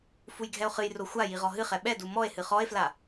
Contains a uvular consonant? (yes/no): yes